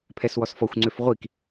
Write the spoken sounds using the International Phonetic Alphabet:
pʰ ɛ s w ɔ s f ɔ xʷ ŋ͡ǀ ø f ʁʷ i k

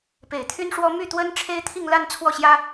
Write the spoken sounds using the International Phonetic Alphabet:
p e˨˩ ɪ̯ t̪ʰ y˥ n ʂ w ɔ˥ m y˥˩ t̪ w ə˥ n ʈ͡ʂʰ e˥ ɪ̯ t̪ʰ i˥˧ ŋ l a˥˧ n t͡sʰ w ɔ˥˩ ɕ j ä˥

